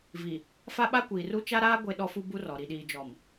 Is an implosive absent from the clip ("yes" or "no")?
no